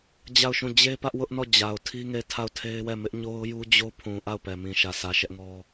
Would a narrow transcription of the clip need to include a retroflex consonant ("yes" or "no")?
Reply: no